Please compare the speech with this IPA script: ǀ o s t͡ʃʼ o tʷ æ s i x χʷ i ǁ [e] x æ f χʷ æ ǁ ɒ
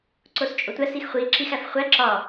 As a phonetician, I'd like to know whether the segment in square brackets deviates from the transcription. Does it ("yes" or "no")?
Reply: yes